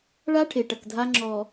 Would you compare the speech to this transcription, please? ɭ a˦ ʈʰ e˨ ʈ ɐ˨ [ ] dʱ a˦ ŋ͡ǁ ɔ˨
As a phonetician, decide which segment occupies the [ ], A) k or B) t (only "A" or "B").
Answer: A